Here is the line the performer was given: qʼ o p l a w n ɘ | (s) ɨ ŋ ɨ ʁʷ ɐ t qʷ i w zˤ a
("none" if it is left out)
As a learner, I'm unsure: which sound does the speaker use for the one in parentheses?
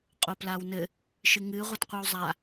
ʃ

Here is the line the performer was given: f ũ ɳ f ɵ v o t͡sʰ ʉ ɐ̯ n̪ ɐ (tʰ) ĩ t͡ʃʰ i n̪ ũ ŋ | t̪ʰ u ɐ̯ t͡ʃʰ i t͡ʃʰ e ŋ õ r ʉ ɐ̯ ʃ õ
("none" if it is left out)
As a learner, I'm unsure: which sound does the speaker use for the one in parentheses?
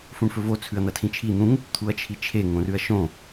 tʰ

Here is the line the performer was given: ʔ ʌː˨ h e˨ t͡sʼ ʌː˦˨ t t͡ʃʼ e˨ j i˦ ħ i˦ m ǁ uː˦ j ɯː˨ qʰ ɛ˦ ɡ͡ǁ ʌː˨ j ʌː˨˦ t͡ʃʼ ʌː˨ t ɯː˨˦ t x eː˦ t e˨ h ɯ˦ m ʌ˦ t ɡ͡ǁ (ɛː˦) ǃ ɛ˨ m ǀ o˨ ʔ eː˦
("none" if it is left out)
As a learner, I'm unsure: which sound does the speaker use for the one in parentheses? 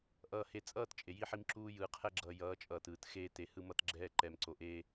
ɛː˦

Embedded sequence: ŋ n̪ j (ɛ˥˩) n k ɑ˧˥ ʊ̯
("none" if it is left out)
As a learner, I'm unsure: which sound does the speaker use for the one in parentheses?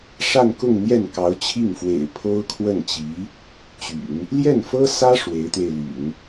ɛ˥˩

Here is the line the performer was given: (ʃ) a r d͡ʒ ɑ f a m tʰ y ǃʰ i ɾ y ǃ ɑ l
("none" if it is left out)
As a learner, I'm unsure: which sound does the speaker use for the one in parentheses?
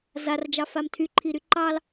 z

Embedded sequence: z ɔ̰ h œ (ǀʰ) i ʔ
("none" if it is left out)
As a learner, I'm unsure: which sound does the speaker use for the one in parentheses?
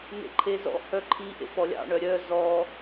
ǃʰ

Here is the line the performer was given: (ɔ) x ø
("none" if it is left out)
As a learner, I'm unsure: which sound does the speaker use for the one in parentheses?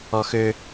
ɔ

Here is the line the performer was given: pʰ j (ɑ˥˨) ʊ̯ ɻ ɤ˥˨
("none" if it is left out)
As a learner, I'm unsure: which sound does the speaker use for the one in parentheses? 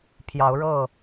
ɑ˨˦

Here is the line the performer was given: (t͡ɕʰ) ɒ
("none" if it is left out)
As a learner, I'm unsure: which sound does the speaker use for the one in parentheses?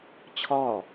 t͡ɕʰ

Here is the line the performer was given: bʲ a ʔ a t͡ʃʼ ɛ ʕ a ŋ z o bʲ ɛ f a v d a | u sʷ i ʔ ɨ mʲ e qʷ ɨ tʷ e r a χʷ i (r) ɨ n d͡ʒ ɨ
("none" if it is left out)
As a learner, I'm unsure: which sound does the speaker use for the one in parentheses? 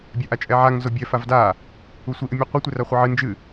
ʕ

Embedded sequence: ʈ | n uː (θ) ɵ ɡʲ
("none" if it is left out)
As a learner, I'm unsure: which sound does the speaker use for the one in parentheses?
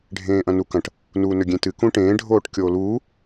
n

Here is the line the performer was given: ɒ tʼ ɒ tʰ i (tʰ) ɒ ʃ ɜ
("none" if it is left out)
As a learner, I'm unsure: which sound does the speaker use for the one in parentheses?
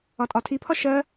pʰ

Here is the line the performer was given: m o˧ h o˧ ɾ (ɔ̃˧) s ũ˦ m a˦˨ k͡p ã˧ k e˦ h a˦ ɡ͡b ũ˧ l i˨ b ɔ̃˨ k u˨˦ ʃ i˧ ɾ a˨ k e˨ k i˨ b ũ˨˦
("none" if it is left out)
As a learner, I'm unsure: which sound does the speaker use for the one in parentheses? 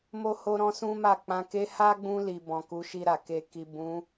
ɔ̃˦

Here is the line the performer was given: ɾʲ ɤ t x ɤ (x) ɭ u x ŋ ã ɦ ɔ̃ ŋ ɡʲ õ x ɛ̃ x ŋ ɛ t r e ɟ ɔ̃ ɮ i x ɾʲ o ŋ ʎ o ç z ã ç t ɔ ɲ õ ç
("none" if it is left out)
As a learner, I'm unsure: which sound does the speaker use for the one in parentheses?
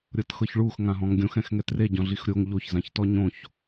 ç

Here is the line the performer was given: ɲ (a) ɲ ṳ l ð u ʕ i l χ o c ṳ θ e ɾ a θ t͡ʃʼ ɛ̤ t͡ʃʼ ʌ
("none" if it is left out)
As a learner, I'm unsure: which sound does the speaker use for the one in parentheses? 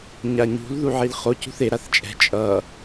a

